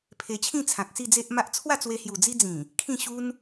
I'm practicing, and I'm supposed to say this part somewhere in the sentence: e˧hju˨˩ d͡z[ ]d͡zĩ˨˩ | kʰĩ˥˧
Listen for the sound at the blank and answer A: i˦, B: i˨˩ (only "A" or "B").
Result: A